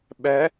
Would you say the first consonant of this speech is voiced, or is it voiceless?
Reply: voiced